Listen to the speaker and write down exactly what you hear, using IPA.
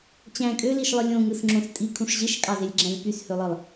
t͡ɕ æ̃ kʼ ø l i ʃ lˠ ɯ lʲ õ ŋ ɯ s ŋ͡ǁ õ s tʼ i kʰ ũ ʂ ʑ e ʃ kʼ ɑ z e lʲ ɡ͡ǁ æ̃ lʲ p y s h ø lˠ ɯ lˠ

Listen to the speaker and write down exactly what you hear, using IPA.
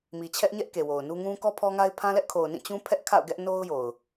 m i˨ t͡ɕʰ ɛ˦ ʔ ɲ ɛ˦ ʔ k e˨ w o˨ ʊ̯ n u˦ ŋ ũ˦ k ɔ˦ pʰ ɔ˦ ŋ a˦ ɪ̯ pʰ ã˦ l ɛ˦ ʔ kʰ o˨ ʊ̯ n ĩ˦˨ t͡ɕ ũ˦ pʰ ɛ˦ ʔ kʰ a̰˦˨ ʊ̯ ɡ ɛ˦ ʔ n o˦ ʊ̯ j o˨ ʊ̯

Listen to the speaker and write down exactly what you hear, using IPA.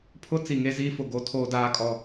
pʰ ʊ˦ t͡s i˨ ŋ e˦ z iː˦ f ʊ˨ ɡ o˦ tʰ oː˦ d aː˦˨ kʼ ɔ˨

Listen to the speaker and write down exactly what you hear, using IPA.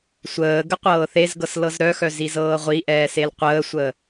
sʷ əː ɡ ə qʷ ɤː θ e z ɡ ɤ s l ɤ z ɾ œ x œ z i z ɤː ʁʷ i ʔ ɛː s e l qʷ əː sʷ əː

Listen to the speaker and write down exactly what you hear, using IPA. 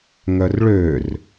ŋ œ r ɭ ø r

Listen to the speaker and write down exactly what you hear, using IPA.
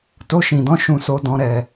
t o˧ ʃ ĩ˨ d ɔ̃˧ ʃ ũ˨ s o˨ d ɔ̃˨ ɾ ɛ˨

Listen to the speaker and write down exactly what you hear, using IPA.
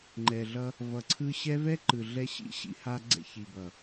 ŋ͡ǃ ɛ˨ ɮ ʌ˧ | v ʌ˨ ǀʰ ɯ˧ ɕ ɛ˦ v ɛ˦ ǃ ɯ˨ ɮ ɛ˧ ɕ ḭ˦ ɕ ḭ˧ h a˧ ɡ͡ǀ ɛ̰˧ ç i˨ b ʌ˨

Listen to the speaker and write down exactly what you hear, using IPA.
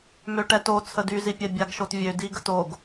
m ø ʈ ɛ t o t͡sʰ ə d y z i pʲ ɛ bʲ a ɡ ʃ o t vʲ ø d i ɡ ə t o ɡ

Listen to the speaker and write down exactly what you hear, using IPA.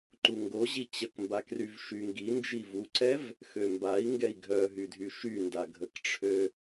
ǃ u ŋ ɡ o ʑ i t͡ɕ ə k m b a k r y v ʃ y ŋ ɡ i n d͡ʒ i v u ǀ ɛ v | x ø m b a i̯ ŋ ɡ ɛ i̯ ɡʱ œ ɦ y dʱ y ʃ y n d a ɡʱ ə k ʈ͡ʂʰ ø

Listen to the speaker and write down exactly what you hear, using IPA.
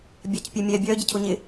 bʲ a c pʲ ø mʲ ɛ bʲ œ ɟ ə cʰ ʊ ɲ ɪ

